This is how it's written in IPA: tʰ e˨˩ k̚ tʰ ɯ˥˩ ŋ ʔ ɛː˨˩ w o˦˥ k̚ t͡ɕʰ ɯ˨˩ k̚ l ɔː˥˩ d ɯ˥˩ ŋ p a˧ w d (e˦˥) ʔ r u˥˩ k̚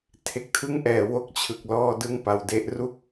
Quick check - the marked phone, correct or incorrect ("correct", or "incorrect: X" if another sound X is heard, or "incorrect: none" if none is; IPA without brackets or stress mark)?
correct